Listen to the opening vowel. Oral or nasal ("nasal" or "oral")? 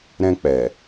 nasal